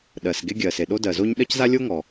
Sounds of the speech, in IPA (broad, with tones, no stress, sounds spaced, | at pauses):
ɗ ɜ˩ s ɡ e˥ ɡʲ ɜ˩ s e˩ ɗ o˥ d ɜ˩ z o˥ ɲ ɗ ɜ˥ c z a˥ lʲ o˥ ŋ ɔ˩